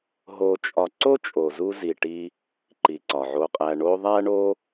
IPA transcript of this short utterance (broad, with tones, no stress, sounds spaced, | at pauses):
ɦ o˨ t͡ʃʼ ɒ˨ ǀ o˦ t͡ʃʼ o˨ z u˧ z i˨ ʈ i˧ | ǃ i˨ ǀ ɒ˨ ʕ o˧ qʼ æ˧ ɳ o˧ ðˤ æ˦ ɳ o˦